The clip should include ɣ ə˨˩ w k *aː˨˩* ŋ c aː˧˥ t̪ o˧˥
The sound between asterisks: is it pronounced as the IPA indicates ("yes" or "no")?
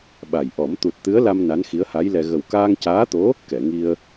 no